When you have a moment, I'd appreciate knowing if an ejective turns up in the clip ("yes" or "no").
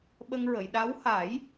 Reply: no